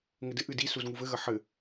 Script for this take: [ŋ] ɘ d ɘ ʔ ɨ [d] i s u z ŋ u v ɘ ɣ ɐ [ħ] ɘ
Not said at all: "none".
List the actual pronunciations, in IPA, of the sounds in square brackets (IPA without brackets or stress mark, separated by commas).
ŋ, d, ħ